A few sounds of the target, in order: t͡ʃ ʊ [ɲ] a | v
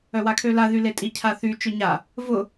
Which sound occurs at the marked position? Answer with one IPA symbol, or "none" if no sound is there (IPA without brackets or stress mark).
ɲ